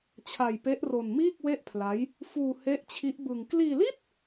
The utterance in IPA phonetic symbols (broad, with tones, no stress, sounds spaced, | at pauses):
t͡ɕʰ a˧ j p e˦˥ ʔ r o˧ n m iː˥˩ k̚ w e˥˩ ʔ pʰ l a˦˥ j | f uː˧ h e˦˥ ʔ t͡ɕʰ i˦˥ ʔ b ɯ˧ ŋ k l iː˧ l i˥˩ t̚